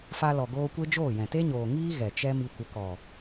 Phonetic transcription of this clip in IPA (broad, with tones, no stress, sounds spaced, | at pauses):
f a˧ l ɔ˨ ɡ oː˧ kʷ e˦ d͡ʒ oː˦˨ j ɛ̃˨ t e˦ ɲ oː˨ ŋ iː˦ ɣ ɛ˨ t͡ʃ ɛ˦ m i˧ kʷ ə˨˦ k ɔ˨